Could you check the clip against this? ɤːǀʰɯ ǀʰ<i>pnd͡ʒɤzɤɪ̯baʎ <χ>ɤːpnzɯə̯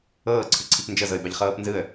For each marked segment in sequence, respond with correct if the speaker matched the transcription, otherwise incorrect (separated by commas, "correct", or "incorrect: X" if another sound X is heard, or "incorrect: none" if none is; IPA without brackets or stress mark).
correct, correct